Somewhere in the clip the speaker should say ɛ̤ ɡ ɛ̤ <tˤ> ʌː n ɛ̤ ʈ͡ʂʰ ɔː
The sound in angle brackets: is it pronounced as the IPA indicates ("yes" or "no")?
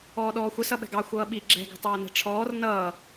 yes